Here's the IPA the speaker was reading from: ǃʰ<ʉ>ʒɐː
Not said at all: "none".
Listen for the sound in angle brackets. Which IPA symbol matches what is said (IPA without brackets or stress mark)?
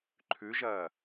ʉ